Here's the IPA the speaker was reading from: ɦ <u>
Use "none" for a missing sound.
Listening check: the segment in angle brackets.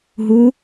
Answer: u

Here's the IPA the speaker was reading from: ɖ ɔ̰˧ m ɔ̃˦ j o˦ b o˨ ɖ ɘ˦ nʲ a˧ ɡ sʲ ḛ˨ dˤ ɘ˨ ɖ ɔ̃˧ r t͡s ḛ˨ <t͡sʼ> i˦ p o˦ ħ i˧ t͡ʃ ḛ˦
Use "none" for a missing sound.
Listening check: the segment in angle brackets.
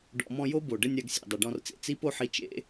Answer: t͡s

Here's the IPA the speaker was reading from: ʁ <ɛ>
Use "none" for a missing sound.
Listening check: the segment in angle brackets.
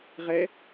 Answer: ɛ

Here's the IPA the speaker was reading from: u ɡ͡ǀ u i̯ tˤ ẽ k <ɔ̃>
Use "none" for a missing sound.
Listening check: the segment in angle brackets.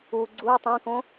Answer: õ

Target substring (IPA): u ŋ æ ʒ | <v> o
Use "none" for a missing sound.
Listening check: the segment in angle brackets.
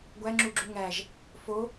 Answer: f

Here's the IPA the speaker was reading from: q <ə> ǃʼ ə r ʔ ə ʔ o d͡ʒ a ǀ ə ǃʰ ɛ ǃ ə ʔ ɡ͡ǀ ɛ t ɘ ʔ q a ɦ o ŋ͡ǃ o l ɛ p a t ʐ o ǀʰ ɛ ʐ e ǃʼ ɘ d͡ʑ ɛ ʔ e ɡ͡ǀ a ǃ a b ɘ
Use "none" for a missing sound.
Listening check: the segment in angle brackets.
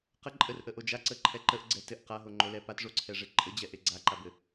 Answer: ə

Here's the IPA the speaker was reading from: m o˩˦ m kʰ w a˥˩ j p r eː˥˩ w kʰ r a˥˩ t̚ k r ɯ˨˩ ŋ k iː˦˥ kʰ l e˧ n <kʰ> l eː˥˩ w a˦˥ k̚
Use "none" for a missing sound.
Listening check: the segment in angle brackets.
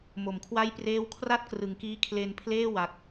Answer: pʰ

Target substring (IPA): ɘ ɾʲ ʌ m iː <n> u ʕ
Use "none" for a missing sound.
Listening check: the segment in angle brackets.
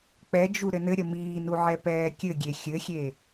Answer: n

